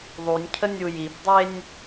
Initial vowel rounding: rounded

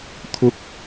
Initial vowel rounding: rounded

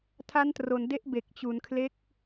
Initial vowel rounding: unrounded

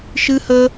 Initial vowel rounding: unrounded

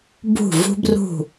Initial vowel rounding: rounded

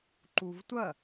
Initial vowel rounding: rounded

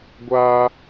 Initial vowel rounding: unrounded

